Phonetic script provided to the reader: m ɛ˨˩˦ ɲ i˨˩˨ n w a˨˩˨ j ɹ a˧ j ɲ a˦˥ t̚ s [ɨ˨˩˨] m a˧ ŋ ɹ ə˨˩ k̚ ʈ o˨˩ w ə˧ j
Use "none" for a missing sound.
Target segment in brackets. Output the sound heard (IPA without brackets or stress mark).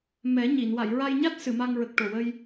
ɨ˨˩˨